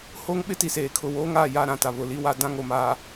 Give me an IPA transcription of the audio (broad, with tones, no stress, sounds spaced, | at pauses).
h oː˦ ŋ ɓ ɪ˦ t i˨ s eː˨ kʰ ʊ˨ w oː˦ ŋ aː˦˨ j a˦˨ ɾ ã˦˨ t a˨ β ʊ˨ l i˦ w a˦ d ã˦ ŋ o˨ m aː˨